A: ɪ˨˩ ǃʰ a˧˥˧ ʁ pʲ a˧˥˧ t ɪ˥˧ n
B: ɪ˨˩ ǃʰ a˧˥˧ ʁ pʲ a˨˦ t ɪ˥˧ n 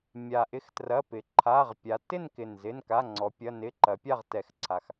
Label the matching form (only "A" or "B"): B